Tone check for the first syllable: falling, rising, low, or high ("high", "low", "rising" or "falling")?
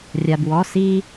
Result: low